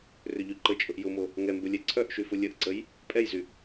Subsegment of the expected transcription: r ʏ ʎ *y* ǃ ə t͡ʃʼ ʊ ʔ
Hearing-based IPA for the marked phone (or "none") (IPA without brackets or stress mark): y